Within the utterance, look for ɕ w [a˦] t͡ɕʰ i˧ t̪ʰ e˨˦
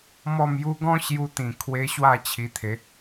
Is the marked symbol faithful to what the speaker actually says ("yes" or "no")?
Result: no